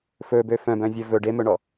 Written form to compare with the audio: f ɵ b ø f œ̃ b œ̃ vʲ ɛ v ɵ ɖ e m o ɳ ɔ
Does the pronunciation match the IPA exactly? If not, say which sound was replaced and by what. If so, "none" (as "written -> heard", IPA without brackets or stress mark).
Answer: o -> ɵ